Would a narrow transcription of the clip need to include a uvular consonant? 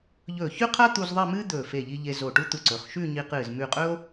yes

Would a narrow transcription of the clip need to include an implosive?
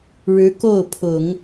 no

